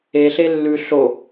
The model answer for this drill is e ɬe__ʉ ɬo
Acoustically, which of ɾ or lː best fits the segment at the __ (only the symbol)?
lː